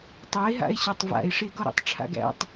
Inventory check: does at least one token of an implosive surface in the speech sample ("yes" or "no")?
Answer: no